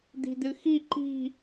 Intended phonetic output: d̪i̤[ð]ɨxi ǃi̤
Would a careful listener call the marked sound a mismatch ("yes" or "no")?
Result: yes